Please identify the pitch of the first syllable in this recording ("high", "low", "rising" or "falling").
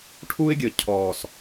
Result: high